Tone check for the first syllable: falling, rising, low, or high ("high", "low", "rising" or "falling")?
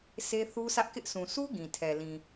high